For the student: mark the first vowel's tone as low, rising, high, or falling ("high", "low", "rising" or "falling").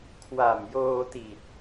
low